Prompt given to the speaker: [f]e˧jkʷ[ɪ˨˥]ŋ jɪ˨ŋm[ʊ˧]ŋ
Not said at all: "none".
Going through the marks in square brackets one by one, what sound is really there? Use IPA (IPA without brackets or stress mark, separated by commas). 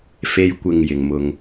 f, ɪ˨, ʊ˧